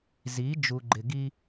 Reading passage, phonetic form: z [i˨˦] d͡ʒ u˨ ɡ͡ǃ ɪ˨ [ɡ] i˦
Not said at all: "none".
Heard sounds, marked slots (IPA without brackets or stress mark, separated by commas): i˨˦, ɡ